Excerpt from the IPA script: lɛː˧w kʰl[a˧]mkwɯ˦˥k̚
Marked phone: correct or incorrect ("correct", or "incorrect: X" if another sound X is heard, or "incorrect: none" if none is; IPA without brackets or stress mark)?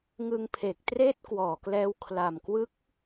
incorrect: a˨˩